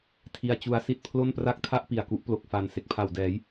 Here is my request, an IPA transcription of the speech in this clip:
tʰi˧a̯t͡ɕu˧a̯ si˥˩t̚pʰlo˥˩npra˥˩k̚tʰa˥˩ʔ pi˨˩a̯ku˦˥ʔ plo˨˩k̚fa˨˩n se˨˩k̚pʰa˨˩w dɛː˩˦j

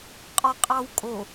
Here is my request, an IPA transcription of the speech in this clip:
qʼɒqʼɑwkʼo

